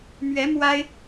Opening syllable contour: rising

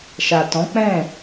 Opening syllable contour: low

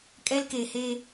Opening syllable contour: high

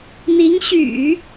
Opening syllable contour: rising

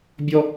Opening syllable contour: high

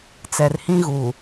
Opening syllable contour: low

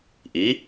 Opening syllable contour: rising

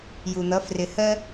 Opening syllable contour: low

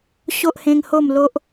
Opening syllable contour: high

